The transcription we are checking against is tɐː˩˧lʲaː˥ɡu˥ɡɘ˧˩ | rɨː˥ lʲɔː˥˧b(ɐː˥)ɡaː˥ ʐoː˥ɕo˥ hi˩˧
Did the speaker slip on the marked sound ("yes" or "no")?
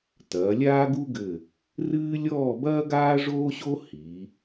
no